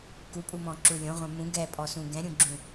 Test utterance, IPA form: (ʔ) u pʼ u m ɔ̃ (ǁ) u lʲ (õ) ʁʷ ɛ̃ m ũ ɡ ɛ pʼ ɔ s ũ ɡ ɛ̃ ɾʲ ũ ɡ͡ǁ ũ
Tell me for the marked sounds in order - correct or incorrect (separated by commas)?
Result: incorrect, correct, correct